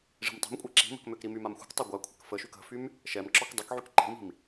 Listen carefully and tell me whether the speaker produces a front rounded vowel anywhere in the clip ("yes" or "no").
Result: yes